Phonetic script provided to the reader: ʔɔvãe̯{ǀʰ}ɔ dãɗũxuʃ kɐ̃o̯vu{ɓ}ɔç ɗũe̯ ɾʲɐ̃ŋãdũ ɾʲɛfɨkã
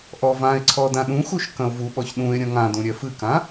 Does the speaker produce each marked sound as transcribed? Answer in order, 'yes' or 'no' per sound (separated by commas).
yes, yes